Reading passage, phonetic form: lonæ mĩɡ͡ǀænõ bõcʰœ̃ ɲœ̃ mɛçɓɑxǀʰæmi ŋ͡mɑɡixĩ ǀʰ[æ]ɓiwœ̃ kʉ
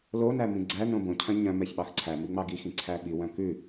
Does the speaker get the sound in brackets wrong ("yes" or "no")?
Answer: no